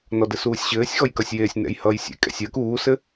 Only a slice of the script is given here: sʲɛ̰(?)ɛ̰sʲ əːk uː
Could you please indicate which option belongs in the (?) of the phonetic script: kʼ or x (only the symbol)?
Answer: kʼ